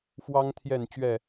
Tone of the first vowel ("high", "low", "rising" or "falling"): high